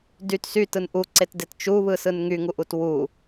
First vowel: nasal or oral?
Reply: oral